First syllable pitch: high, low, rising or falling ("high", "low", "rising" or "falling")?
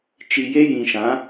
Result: low